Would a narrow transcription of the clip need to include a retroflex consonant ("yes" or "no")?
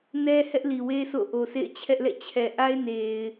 no